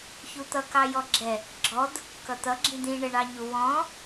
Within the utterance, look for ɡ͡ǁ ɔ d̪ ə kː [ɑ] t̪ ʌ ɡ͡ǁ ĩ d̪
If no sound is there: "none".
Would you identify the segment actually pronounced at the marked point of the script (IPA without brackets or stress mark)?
ʌ